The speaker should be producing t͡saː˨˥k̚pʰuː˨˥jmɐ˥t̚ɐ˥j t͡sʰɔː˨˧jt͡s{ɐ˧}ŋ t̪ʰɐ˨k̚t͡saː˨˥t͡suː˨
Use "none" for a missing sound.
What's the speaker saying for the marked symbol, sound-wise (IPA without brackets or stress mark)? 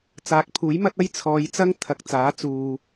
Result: ɐ˥